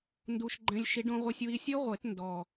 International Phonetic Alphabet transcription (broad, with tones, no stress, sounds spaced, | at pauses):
n d u˧ ʃ ɡ͡ǃ ɛ̃˧ lʲ ʃ i˨˩˦ ɖ õ˧ ʁʷ ɛ˧ sʲ w i˧ sʲ ɤ˦˥ ʁʷ e˨˩˦ t n d ɔ˨˩